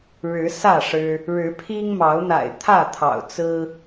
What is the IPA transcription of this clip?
ɻ ɻ̩˨˦ s ä˥˨ ʂ ɻ̩˦ | ɻ ɻ̩˨˦ pʰ i˦ ŋ m ɑ˨˦ ʊ̯ n̪ a̰˨˩ ɪ̯ t̪ʰ ä˥˨ t̪ʰ ɑ̰˨˩ ʊ̯ t͡s ɹ̩˦

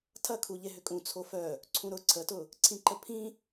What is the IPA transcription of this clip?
tʰ ɐ kʰ u ʎ e ɦ ʏ kʼ ũ t͡sʰ o f œ | ǀʰ ũ ɾ ʊ ǀʰ ə t ʊ | ǀʰ ĩ ǃ ə pʰ ĩ

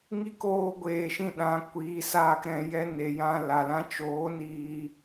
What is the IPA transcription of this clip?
ŋ i˦ k oː˧ ɡʷ eː˨ ʃ ĩ˧ ɗ ã˨˦ kʷ iː˧ s aː˦ k ɾ ɛ̃˧ j ɛ˦ n e˨ j ã˧ l a˨ l ã˧ t͡ʃ oː˨˦ n iː˧

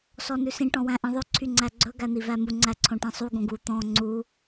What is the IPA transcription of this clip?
s ɔ n ʉ s ĩ ʈ ɔ̃ w æ̃ ʔ ĩ ðˤ ø ǀʰ y ŋ͡ǀ æ ɡ͡ǀ ɵ ɡ æ n̪ i v æ m u ŋ͡ǀ æ ǀʰ õ ʈ ĩ sˤ u ɡ õ ɡ u t̪ ɔ̃ ŋ͡ǀ u

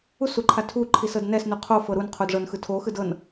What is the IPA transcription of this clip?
u s u ǃʰ a tʰ u ǃʰ i s ɤ d n ɛ s n u qʰ o f ɤ ɾ u n qʰ o d ʐ ɤ n x ɯ tʰ o x ɯ d ɤ n

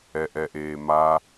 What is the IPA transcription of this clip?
ɛ ʔ ɛ ʔ eː m a

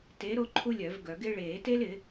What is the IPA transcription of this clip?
t e˨˥ ɾ o˥ ǃʰ u˥ lʲ œ˨˩˦ v ɡ œ˨˩˦ ɡ ɪ˥ ɭ eː˨˩˦ t e˥ l ɪ˨˩˦

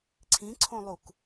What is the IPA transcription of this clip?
ǀʰ ĩ ǀʰ õ lˠ u k

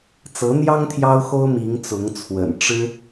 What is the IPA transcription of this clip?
t͡s ɤ˧˥ n̪ j ɑ˥ ŋ t̪ʰ j ɑ˥ ʊ̯ x o˥ ʊ̯ m i˧˥ ŋ t͡s ʊ˧˥ ŋ t͡sʰ w ə̰˨˩ n ʈ͡ʂ ɻ̩˥

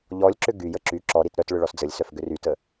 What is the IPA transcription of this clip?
ʎ ɔ lʲ ǁ ʏ ɡ y j ə ǁ y ǁ ɔ ɾ i t ɾ œ t ɭ ʏ ɭ ɔ s d͡z ə lʲ s œ f ɡ ʏ r y t ə

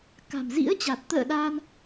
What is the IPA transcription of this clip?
k a̤˨˩ m z ḭ˧˥ ə̯ t͡ɕ a˨˩ t̚ t̪ ə̰ː˧˨ ɗ a˧ n

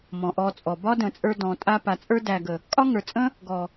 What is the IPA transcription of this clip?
m ɔ̃˨ ʔ ɔ˧ t͡sʼ ɔ˨ b ɒ˦ d ə̃˨ t͡sʼ ə˞˧ d ɔ̃˨ tʼ a˧ p a˨ t͡sʼ ə˞˧ d æ˨ ɡ ə˨ | kʼ ɒ˦ ŋ ə˞˨ t͡sʼ ə̃˦ | ɡ ɔ˨

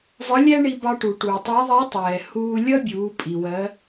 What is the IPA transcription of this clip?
v ɒ˧˥ lʲ æ˥ ɳ i˧ b ɑ˧ ʈ u˩ ʈ uː˩ tˤ ʌː˧˥ ðˤ ɛː˧˥ tˤ ɛː˩ h uː˧ lʲ ʌ˥ bʲ uː˩˧ pʼ i˩ w ɜ˩˧

